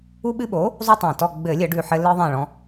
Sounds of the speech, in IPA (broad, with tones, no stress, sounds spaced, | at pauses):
u˦ ɓ ɨ˦ ɓ o˩˥ | zˤ u˦ tˤ ã˨˩ t ɔ˦˨ ɡ͡b ɘ˧˩˧ lʲ ɘ˧˩˧ ɖ ʉ˨˩ ħ ɘ˦ l ɨ˦ ðˤ ã˦˨ ɭ ɔ̃˦